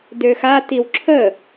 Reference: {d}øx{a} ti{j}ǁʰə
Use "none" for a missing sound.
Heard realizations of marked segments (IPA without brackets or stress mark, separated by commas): d, a, w